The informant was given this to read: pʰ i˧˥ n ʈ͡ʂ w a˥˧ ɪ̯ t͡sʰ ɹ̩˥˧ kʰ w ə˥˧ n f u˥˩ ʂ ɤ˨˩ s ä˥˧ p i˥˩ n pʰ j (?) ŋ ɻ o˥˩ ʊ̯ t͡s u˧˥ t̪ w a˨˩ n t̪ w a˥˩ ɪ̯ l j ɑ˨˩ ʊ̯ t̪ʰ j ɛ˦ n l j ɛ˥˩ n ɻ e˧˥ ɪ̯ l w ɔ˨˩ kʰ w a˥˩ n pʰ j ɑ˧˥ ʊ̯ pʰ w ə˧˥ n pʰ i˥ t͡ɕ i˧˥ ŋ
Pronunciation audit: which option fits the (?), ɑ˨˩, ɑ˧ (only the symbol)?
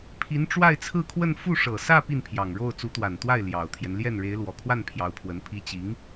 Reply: ɑ˨˩